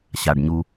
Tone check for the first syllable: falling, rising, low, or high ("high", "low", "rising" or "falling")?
low